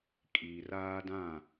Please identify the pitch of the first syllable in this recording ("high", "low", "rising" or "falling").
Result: low